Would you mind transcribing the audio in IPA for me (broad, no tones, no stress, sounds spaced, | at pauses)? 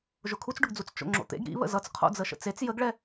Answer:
ʒ ʊ kʰ u t͡s ɖ ʊ ɡ d͡z u t͡s t͡ʃ o̰ ŋ͡ǁ o̰ t̪ ḛ ɡ ɾ ḭ β ə̰ z ʌ t͡s qʰ o̰ d͡z ə ʃ ə̰ t͡s e t͡s j ə ɡ ɭ ɛ